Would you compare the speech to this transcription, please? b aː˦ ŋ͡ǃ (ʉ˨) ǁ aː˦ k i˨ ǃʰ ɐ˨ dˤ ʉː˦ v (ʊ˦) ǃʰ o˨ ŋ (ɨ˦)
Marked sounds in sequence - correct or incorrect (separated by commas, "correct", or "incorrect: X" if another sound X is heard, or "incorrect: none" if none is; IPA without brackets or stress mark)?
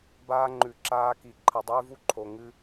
correct, incorrect: u˦, correct